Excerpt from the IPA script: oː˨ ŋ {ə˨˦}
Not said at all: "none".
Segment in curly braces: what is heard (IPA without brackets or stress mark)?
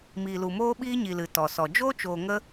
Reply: ə˦